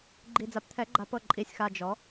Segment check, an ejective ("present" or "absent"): present